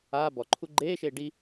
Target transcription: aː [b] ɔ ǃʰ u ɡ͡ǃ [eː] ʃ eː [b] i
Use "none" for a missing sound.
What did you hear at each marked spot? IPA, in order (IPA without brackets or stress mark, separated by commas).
b, eː, ɖ